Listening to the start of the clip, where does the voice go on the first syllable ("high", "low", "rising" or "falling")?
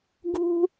high